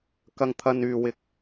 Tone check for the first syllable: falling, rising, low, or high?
high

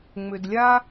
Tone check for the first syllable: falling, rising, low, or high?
low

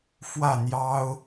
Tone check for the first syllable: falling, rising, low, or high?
falling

